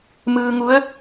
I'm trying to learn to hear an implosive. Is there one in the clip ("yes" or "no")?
no